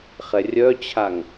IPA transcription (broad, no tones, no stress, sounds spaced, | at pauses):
χ ɛ rʲ œ t͡ɕʰ a ŋ